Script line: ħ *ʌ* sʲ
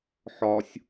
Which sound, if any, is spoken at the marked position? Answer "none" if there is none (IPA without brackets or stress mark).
ɒ